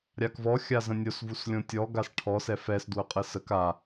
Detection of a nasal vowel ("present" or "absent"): present